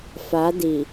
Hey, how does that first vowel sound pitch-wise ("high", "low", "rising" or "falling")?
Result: rising